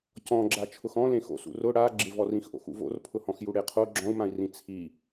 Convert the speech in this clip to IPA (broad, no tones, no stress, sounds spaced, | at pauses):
c ɔ̃ ɡ͡ǁ a t͡ʃʰ ʊ x ɔ̃ l ẽ x o̰ s ṵ r ʊ ɽ a ɡ͡ǁ ɪ v ɔ r ĩ x ʔ o̰ x ṵ v o̰ r pʰ ʊ h ɔ̃ x j u ɽ e qʰ o ɡ͡ǁ ɔ̃ u̯ m ã i̯ r ĩ t͡sʰ i